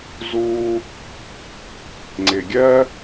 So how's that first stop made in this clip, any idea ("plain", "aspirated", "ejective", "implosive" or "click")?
click